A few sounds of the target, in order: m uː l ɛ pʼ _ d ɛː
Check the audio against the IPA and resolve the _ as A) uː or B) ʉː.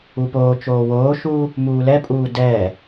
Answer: A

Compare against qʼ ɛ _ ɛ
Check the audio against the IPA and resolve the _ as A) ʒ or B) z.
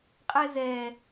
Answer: B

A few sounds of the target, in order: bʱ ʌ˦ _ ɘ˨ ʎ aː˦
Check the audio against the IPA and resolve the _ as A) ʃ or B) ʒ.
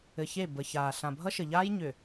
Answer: A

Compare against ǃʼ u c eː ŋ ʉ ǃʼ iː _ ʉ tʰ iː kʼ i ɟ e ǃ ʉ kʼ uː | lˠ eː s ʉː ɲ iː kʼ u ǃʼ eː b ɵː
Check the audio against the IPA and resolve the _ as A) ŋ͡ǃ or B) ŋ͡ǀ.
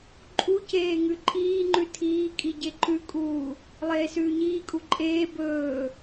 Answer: A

